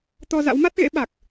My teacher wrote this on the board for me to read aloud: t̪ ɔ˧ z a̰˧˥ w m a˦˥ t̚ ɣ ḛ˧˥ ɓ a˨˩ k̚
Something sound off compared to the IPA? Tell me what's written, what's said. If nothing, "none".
none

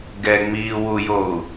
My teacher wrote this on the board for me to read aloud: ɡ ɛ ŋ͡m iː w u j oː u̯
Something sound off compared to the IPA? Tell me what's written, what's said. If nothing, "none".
none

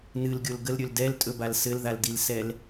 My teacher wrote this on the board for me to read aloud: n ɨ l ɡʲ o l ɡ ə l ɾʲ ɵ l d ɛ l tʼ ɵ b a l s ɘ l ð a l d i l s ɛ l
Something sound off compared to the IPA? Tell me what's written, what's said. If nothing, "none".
none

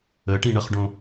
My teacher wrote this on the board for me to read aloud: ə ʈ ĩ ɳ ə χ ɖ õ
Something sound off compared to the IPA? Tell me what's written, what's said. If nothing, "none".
none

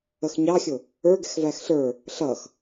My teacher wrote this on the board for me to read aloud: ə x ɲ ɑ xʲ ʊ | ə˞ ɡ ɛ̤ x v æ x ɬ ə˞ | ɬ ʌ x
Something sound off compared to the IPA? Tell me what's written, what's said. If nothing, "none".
none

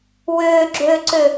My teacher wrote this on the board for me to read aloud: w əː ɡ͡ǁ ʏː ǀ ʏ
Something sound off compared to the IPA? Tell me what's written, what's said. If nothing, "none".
əː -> ʏː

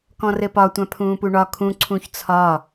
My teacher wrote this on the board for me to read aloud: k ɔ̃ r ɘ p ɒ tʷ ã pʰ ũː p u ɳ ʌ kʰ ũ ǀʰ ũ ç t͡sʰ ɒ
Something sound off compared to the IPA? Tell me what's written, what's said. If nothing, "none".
ʌ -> ɒ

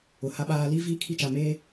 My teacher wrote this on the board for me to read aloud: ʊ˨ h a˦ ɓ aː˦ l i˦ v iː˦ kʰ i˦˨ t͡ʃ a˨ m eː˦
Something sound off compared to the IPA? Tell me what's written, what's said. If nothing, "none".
none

